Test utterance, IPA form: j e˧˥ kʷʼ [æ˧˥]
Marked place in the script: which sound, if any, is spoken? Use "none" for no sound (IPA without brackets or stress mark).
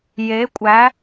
æ˧˥